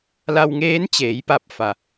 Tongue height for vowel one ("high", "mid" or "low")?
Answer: low